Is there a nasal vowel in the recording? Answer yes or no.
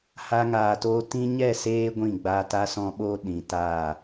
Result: yes